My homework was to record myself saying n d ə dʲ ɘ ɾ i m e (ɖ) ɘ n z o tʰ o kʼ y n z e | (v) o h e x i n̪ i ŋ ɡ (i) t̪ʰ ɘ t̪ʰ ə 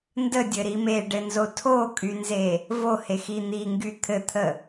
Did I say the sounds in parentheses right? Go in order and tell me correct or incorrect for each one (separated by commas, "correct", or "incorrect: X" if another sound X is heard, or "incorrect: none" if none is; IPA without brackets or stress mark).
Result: correct, correct, incorrect: y